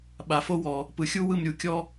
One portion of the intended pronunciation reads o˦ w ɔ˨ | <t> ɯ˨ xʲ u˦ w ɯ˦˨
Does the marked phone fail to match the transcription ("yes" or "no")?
yes